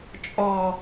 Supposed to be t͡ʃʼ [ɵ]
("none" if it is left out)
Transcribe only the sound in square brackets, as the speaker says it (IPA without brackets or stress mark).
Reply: ɔ